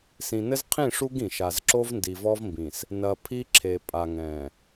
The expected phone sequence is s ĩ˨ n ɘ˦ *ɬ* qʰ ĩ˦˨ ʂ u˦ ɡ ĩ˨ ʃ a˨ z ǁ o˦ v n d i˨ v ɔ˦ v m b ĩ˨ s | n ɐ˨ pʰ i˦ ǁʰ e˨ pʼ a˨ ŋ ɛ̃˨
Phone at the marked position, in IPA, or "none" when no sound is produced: z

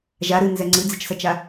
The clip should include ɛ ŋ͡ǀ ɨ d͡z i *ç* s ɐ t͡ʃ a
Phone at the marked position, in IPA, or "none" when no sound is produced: t͡ʃ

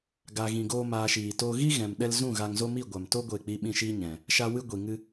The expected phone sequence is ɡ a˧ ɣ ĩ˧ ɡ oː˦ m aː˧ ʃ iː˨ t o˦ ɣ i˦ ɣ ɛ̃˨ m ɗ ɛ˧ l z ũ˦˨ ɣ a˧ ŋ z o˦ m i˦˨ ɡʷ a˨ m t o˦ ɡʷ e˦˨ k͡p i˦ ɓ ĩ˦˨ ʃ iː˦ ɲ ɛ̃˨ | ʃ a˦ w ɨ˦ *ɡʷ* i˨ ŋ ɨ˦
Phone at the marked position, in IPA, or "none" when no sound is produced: ɡʷ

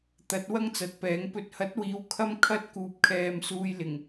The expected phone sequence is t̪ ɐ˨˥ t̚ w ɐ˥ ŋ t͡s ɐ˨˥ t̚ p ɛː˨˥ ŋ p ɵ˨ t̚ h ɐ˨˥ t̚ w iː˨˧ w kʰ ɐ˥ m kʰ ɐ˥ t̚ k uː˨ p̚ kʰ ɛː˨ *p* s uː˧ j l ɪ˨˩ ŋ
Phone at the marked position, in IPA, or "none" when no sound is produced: m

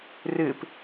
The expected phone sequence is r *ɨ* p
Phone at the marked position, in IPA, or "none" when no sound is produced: ɨ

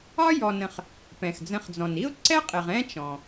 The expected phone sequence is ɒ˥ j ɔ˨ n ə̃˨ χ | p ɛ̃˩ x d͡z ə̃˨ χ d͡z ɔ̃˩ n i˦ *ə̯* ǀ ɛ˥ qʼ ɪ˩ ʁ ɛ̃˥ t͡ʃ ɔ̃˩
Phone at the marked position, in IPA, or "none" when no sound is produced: ʊ̯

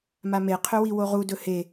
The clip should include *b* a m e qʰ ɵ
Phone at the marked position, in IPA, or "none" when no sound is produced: m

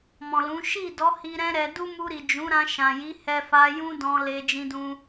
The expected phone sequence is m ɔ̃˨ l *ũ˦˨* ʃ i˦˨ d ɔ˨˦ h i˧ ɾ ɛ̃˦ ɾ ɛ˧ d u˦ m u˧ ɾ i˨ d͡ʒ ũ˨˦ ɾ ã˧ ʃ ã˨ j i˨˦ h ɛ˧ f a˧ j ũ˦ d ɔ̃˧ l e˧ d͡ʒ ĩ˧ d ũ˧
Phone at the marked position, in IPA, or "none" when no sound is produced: ũ˨˦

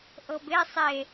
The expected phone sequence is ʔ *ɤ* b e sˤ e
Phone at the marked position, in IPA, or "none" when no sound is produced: ɤ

